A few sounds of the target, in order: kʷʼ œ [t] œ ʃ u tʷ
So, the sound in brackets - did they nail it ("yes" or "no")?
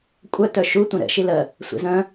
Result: yes